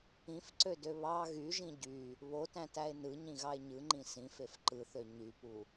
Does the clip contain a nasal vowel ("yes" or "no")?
yes